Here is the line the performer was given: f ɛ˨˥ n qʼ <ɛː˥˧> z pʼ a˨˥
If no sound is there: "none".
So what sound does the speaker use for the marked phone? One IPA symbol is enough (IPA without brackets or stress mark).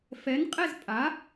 ɛ˥˧